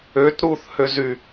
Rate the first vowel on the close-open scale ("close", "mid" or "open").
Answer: mid